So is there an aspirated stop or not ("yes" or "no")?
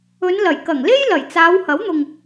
no